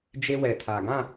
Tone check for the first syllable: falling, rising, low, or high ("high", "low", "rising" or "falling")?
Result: high